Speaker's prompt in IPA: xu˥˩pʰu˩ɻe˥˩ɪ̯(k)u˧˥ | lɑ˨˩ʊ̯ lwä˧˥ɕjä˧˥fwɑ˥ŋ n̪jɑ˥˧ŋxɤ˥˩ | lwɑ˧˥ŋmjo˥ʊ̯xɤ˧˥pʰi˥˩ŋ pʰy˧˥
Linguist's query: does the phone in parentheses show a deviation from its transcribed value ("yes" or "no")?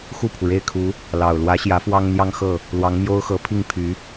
yes